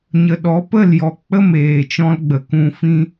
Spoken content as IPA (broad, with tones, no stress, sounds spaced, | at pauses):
ɲ ə˨ ɗ ɔ˨˦ p ə˦˨ l j ɔ˨ k͡p ə˦ m eː˨ t͡ʃ ɔ̃˧ l ɡ͡b ə˨ k ũ˧ f ĩ˦